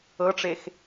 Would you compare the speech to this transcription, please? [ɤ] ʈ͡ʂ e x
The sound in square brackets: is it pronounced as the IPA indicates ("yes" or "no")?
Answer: yes